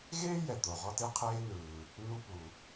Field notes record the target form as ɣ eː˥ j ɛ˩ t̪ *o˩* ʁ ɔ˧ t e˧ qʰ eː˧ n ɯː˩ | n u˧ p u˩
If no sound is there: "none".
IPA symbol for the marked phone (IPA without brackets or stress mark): o˩